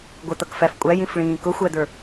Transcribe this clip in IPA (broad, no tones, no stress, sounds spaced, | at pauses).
ɡʷ ə t̪ ʌ k f æ f kʷʼ æ j ĩ f ɭ ĩː k ʊ xʷ æ d̪ ə˞